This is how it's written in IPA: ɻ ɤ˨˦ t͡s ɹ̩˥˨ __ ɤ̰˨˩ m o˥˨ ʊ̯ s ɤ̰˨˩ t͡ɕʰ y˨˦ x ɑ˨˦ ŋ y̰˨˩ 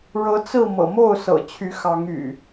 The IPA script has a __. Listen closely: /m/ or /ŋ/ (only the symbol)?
m